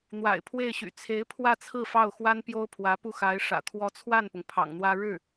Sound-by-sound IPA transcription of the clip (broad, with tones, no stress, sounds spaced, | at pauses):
n̪ w a̰˨˩ ɪ̯ pʰ w e˥˩ ɪ̯ ɕ y̰˨˩ t͡sʰ e˧˥ ɪ̯ pʰ w ä˥˧ t͡sʰ ɹ̩˥˧ f ɑ˥˩ ʊ̯ x w a˥ n p j o˥ ʊ̯ pʰ w ä˧˥ p u˥˩ x a˧˥ ɪ̯ ʂ ä̰˨˩ t̪ʰ w ɔ˧˥ t͡sʰ w a˥˩ n p ʊ˩ ŋ pʰ ɑ̰˨˩ ŋ n̪ w ä˥ ɻ ɻ̩˥˩